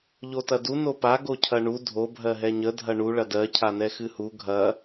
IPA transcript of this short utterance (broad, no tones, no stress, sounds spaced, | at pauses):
ʎ o t ɐ d u n o p a ɡ o cʰ ɐ ɳ u dʱ o bʱ ɜ ɦ ɛ ɲ ə dʱ ɐ ɳ u ɭ ɐ d ɜ cʰ a n ɛ x ɨ h u ɡʱ ɐ